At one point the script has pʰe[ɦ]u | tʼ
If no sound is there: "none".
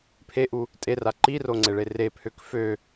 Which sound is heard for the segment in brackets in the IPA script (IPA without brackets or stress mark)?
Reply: ʔ